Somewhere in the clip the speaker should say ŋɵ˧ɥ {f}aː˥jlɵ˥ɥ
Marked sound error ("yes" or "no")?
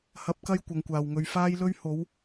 no